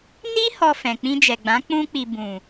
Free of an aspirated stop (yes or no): yes